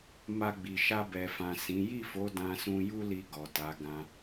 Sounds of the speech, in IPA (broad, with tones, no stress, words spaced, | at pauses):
ma˧ɡ͡bi˨ ʃa˧bɛ˨fã˨ sĩ˨˦ ji˦˨fo˨˦ dã˧sũ˧ju˦li˧ ɡɔ˨ta˨˦ ɡã˧